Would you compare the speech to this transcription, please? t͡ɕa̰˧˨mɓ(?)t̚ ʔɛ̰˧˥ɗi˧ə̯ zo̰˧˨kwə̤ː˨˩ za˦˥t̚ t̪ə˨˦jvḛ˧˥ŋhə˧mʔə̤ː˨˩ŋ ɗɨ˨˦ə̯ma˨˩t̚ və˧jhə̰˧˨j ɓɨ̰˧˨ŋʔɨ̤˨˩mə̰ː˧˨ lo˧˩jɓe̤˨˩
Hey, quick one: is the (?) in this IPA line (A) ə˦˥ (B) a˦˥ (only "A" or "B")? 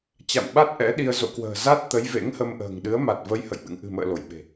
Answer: B